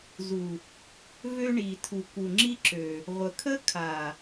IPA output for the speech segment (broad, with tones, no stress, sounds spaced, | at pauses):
z u˨ | v ø˦ ɳ i˨ tʰ u˨ k u˨ ŋ͡ǁ i˦ ǁ ø˨ | ʁʷ ə˨ kʰ ə˦ kʰ a˨